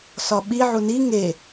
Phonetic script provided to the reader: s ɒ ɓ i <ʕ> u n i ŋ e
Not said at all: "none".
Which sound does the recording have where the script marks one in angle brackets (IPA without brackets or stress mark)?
ʕ